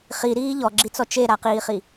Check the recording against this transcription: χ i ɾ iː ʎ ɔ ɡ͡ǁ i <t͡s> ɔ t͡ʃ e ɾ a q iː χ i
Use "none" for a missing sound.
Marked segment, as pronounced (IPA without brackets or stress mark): t͡s